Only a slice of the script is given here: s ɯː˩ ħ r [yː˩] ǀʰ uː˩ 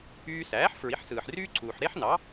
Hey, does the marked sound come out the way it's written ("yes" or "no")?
no